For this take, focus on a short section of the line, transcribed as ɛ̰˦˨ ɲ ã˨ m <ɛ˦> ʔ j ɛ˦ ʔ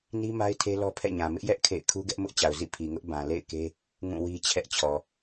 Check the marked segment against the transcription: incorrect: ɪ˦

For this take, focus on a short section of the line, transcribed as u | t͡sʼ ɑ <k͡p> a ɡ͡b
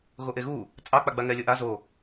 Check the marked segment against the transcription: correct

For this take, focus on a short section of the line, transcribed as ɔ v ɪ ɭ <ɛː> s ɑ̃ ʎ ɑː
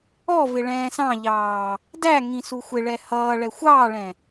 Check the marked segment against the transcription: incorrect: ɛ̃ː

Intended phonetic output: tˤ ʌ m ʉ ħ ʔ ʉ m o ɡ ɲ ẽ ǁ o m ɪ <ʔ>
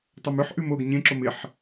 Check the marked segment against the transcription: incorrect: ħ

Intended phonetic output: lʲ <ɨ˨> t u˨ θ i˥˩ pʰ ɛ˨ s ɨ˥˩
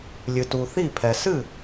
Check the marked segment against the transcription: correct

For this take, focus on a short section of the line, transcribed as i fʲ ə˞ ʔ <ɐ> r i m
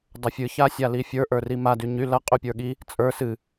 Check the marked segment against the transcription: incorrect: ə˞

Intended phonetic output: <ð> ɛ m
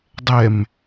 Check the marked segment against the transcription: incorrect: dˤ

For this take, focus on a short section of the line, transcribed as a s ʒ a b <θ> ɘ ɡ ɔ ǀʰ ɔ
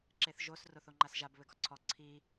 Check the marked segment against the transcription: incorrect: β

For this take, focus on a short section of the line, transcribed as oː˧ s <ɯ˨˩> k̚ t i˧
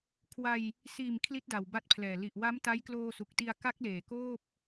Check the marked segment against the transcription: incorrect: u˨˩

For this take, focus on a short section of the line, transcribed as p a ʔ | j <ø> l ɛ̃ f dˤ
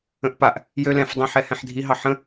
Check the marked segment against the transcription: correct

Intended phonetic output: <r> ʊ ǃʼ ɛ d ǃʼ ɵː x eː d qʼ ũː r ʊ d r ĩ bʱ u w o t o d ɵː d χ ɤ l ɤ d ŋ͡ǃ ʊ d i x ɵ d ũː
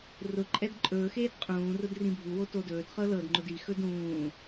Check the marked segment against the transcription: correct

